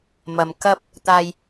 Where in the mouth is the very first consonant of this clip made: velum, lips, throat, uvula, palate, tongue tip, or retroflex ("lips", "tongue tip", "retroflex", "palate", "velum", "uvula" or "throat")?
lips